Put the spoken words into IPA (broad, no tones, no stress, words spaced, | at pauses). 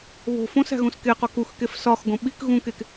βo̤ fõs æ̤ɣũskeqɒ kuxkef sɒxɡõ ɓik ɣũkek